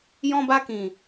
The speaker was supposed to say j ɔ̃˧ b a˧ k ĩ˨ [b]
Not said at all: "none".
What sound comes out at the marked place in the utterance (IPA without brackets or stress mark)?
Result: none